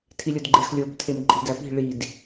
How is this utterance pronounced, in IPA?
tʰ i lʲ o d ɡ͡ǃ e x lʲ o b tʰ e m ǃʼ i̤ d æ p i̤ ɭ i d

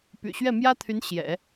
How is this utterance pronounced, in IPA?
p y̰˨˩ ɕ ɥ ɛ˥˩ m j ä˥ t̪ʰ y˧˥ n ɕ j ɛ̰˨˩˦

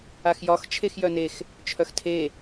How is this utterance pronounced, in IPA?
a x j ɒ x t͡ʃʰ e x j œ n e x | t͡ʃʰ œ x tʰ e

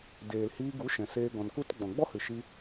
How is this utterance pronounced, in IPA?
d eː˨ l h iː˧ ɡ u˨˦ ʃ ɛ̃˨ s eː˧ ɡ ɔ̃˨ n k u˦ t ɡ͡b ɔ̃˨ ɡ͡b ɔ˦ h ɨ˨ ʃ i˧

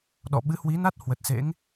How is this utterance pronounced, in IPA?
ɗ ɔ̰˧˨ ɓ ɨ˨˦ h w i˨˦ n a˦˥ t̚ h w ə˨˩ t̚ s ḛ˧˥ ŋ

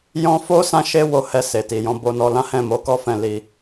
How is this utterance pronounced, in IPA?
j ɔ̃˦ f o˦ s ã˦ ʃ e˦ w o˧ h ɛ˧ s e˨ t i˨ j ɔ̃˧ b o˧ n ɔ˧ l ã˦ h ɛ̃˦˨ m o˨˦ k ɔ˦ f ɛ̃˦˨ l i˧

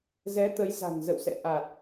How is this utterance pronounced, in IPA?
z ɛ˨˦ t̪ ə˨˦ j z a̤˨˩ n z ə̰˧˨ w s ɛ̰˧˨ ʔ a˨˩ t̚

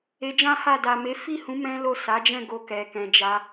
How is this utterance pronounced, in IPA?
e˧ d͡ʒ ã˦ h a˦˨ d a˨ m e˨˦ f i˦˨ h ũ˨˦ m ɛ̃˦ l o˦˨ s a˨˦ d͡ʒ ɛ̃˦˨ ɡ o˧ k ɛ˨ k ɛ̃˨ d͡ʒ a˧

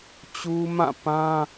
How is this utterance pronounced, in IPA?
t͡ɕ u˦ m ã˦˨ p ã˦

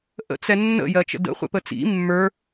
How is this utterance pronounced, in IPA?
ʔ ə̰ t͡s ɛ nː ə̰ j ɜ t͡ʃ ə̰ d ə̰ χʷ ɛ̰ p ə t͡s ḭ mː ə˞

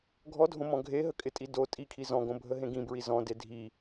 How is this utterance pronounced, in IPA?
ɡʱ ɔ dʱ õ m ɔ̃ ɡʱ e ɦ ə kʼ ɪ tʼ i d o tʼ i kʰ i z ɔ̃ ɡ õ bʱ ə ɦ ẽ ɡ ĩ b ɹ i z ɔ̃ d e dʱ i

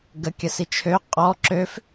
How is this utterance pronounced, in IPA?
ɡ ə kʲ ə s i t͡ʃʰ ø qʼ ɔ ǁ ø f

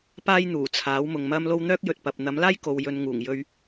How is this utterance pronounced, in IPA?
p aː˥ j n̪ uː˨˩ t͡sʰ aː˨˥ w m ʊ˨ ŋ m ɐ˥ m l o˥ w n̪ œː˥ k̚ j ɵ˨ t̚ p ɐ˨ p̚ n̪ ɐ˨˥ m l aː˥ j k o˨ w j ɵ˨˧ n ŋ uː˨˩ ŋ j ɵ˧ ɥ

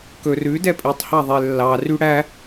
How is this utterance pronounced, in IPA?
k ɵ r ʉ d ɛ pʼ i tˤ h ɑ ðˤ e lː ɑ r y ɽ æ

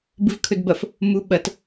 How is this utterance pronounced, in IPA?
b ɨ v kʰ ɵ d b ɐ f | m u ɓ ɐ t

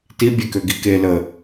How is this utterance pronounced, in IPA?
t i bʲ e k ø ɡ i k e l ə

